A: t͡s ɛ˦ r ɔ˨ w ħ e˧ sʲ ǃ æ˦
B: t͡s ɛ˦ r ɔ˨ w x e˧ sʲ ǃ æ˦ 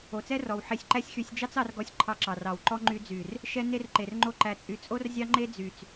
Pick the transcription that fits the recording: A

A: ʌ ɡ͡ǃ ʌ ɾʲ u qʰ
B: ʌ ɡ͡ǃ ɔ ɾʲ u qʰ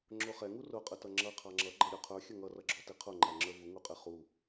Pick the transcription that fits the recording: A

